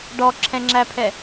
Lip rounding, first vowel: rounded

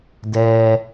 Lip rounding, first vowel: unrounded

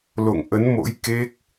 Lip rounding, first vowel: rounded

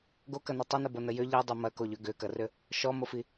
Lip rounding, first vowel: rounded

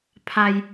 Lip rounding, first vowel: unrounded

